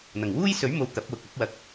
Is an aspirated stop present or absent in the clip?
absent